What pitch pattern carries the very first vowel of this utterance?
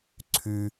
low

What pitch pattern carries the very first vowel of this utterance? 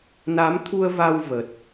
rising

